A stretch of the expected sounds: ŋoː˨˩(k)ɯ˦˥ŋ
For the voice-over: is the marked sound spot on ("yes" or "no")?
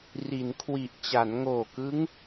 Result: yes